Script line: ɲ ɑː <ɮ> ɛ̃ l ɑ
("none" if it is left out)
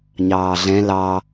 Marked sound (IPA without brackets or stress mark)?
ɮ